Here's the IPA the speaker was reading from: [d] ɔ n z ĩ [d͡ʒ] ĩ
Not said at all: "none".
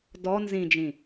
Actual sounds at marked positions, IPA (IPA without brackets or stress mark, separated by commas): d, d͡ʒ